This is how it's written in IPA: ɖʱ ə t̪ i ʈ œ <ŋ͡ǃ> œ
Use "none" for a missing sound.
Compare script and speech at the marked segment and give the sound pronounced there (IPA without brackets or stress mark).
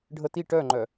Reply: ŋ͡ǃ